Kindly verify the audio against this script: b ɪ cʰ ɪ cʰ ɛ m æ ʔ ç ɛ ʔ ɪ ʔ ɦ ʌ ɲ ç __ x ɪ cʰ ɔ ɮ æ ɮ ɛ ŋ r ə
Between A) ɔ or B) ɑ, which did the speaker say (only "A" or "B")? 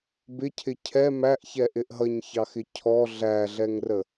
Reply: B